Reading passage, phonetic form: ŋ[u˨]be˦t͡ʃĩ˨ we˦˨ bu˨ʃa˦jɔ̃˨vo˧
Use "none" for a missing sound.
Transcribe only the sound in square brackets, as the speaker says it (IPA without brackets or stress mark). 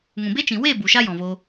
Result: ũ˨